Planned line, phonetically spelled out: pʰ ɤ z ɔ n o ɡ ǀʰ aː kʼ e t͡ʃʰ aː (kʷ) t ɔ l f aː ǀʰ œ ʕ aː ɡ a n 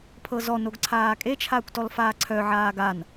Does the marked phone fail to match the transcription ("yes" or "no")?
no